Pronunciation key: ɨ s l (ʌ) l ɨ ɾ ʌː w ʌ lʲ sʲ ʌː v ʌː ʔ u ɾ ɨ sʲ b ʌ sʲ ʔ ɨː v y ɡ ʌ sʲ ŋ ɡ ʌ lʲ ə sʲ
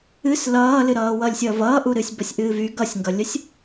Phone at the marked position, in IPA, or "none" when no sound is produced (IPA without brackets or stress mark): ʌː